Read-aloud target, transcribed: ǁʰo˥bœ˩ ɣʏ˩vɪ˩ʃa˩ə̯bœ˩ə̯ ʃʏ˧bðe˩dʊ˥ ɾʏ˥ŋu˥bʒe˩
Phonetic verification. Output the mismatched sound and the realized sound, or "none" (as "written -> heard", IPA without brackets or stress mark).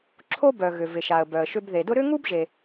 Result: none